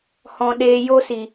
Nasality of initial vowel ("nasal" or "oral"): nasal